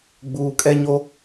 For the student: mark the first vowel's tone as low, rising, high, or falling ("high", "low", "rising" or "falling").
low